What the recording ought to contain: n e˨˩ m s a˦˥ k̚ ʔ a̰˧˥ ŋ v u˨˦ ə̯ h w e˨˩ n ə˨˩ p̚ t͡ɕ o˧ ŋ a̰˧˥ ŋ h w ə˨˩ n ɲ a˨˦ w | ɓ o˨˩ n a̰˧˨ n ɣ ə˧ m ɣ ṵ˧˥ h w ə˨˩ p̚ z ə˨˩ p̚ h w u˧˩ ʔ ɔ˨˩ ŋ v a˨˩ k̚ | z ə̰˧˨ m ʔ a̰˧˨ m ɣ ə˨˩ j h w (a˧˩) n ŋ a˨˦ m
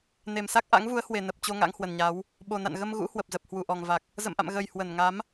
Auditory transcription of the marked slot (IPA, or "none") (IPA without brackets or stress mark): ə˧˩